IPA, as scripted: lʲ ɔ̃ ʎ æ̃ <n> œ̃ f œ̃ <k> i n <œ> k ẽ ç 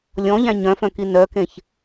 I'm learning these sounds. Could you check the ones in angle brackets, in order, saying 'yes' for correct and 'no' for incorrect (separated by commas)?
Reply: no, yes, yes